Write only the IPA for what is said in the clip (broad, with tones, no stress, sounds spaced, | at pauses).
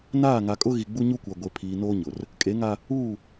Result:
n aː˦˨ ŋ a˨ kʼ ʊ˦ ɣ i˨ ɡ͡b u˦ ɲ u˦ kʷ a˨ ɡʷ e˨ pʰ iː˨ n oː˦ ɲ ʊ˨ r | kʼ e˨˦ ŋ a˦ | uː˦˨